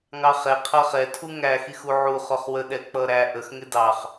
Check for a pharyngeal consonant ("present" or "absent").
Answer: present